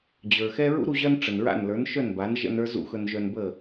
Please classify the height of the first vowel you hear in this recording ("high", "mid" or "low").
mid